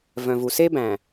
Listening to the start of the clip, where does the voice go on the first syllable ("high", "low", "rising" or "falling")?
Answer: low